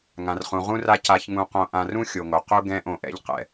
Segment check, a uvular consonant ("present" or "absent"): present